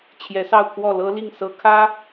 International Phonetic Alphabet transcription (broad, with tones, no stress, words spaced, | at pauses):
t͡ɕʰjɛ˧˥sɑ˥˧ʊ̯kʰwɔ˥˩ lɤ˥li˥˩ŋ sɤ˧˥kʰä˥